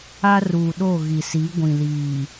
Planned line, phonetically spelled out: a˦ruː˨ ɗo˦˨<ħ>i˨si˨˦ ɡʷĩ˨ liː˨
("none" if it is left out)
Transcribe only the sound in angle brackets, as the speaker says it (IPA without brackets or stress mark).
ɣ